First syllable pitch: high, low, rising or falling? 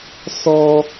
high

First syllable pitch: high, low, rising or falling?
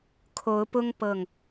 rising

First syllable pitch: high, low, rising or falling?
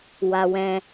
low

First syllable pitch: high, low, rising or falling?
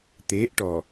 rising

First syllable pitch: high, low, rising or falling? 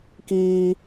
high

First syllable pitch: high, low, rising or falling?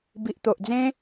low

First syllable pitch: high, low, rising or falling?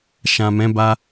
low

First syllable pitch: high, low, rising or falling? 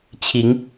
rising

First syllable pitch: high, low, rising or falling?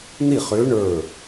falling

